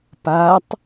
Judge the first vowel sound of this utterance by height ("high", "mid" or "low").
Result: low